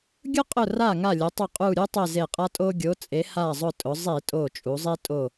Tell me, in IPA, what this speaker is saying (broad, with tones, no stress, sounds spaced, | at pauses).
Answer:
ɡʲ ʊ˦ qʼ ʊ˧˩ r a˧˩ ŋ a˧˩ lʲ ʊ˩˧ tˤ ʊ˧˩ qʼ u˧˩ ɾʲ u˦ tˤ e˧˩ z e˧˩ qʼ a˦ tʼ o˦ ɡʲ o˩˧ t͡sʼ e˩˧ h a˧˩ zˤ ʊ˧˩ tʼ ʊ˩˧ zˤ i˧˩˧ tʼ o˧˩ t͡ʃʼ u˩˧ zˤ i˦ tʼ o˧˩